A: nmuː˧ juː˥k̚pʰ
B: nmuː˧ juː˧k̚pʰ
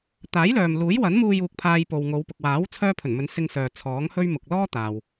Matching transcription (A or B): B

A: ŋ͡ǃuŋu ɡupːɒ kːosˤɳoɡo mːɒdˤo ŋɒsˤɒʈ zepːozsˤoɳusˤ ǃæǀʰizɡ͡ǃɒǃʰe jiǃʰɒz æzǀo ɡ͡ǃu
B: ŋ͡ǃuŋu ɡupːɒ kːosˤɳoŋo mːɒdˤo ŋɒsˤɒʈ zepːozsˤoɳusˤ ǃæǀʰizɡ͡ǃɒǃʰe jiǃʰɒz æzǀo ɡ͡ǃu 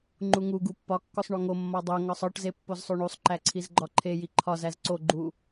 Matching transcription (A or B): B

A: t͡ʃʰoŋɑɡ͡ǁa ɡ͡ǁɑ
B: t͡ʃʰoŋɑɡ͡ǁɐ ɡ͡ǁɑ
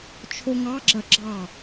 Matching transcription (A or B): B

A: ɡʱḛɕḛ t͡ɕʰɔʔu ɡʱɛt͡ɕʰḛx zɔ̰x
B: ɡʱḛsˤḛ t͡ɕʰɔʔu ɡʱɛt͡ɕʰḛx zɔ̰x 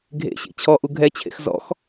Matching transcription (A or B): A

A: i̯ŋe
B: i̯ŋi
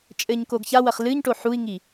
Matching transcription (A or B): B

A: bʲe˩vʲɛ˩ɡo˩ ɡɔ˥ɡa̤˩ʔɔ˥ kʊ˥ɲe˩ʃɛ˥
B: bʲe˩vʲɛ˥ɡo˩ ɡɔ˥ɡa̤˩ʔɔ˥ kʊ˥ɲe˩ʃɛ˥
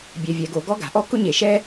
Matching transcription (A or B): A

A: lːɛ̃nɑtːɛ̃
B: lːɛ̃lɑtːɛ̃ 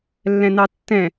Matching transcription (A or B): A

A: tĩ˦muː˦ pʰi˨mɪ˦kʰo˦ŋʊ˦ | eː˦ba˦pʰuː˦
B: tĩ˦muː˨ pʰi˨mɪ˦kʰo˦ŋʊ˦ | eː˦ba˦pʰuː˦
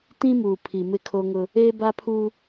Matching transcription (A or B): B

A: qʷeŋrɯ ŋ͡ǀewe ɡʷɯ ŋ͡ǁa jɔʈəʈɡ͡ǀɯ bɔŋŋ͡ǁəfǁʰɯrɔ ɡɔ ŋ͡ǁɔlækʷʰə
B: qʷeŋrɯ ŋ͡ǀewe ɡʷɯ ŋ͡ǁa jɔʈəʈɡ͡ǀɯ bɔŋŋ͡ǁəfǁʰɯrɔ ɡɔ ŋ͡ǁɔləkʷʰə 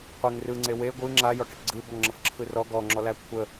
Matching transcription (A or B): A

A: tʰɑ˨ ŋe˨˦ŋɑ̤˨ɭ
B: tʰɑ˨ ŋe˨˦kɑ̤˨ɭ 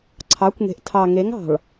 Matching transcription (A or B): A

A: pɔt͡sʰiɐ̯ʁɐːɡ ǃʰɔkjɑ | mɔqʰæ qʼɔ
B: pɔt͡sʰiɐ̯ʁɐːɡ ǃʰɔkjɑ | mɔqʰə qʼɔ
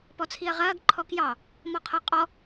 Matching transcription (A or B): B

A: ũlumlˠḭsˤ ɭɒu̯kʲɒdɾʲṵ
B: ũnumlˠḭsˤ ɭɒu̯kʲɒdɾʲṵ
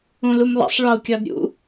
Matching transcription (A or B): A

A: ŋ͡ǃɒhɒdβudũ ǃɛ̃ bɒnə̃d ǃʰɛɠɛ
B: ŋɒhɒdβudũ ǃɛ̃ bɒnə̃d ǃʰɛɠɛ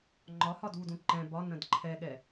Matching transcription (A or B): A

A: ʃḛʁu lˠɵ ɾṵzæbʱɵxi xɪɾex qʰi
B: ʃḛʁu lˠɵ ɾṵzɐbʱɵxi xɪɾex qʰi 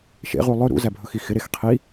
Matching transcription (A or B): A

